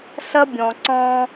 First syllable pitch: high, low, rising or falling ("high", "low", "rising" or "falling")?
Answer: high